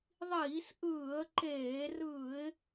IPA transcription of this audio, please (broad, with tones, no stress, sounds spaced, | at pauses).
ðˤ iː˧˩˧ s ʔ ɯː˧˩˧ ə̯ ǃ eː˧˩˧ r ɯ˧˩˧ ɪ̯